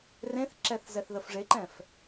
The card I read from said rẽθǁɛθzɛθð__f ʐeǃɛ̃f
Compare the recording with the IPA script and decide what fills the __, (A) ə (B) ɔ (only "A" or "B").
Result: A